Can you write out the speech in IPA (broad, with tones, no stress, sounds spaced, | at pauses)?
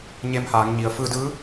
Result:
ɲ e˧ m h aː˩˧ ŋ ɲ i˩˧ ə̯ f ɯː˧ d ɯː˧˥